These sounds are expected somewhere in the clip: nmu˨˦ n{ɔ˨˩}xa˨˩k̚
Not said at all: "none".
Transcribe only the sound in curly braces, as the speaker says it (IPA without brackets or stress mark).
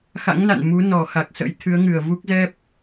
ɔ˨˩